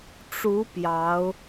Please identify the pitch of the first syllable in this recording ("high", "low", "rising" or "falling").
rising